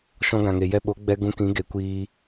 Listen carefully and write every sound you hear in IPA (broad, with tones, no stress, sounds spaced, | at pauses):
ʃ ɔ̃˧ ɡ ã˨ ŋ e˨ j ɛ˧ ɓ o˨˦ ɡ͡b ɛ˧ ɡ ũ˧ k ĩ˨˦ ɡ e˨˦ kʷ iː˧